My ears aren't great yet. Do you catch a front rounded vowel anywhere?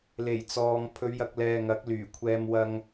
yes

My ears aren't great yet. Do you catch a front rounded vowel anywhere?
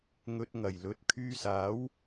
yes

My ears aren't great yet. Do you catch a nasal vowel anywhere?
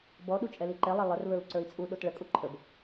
no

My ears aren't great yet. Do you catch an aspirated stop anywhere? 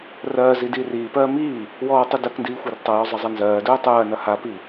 no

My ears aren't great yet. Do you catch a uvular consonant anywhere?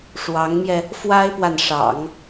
no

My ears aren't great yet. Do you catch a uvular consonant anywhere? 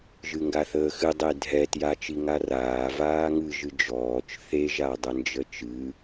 no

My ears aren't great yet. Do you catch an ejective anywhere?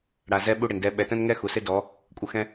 yes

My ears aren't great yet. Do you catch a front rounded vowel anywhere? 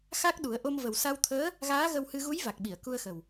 no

